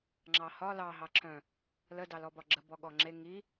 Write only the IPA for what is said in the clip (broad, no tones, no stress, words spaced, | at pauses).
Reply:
ŋ͡ǁɑhɒ lɑ ɦɑǁʰœ̃ | lə dɑlɔbɒɡ͡ǁə bɔɠɔŋ͡ǁe ŋi